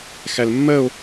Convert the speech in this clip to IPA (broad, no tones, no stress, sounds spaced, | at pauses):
x æ l mː ɜ o̯